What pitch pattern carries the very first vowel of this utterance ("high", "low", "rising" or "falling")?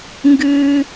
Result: high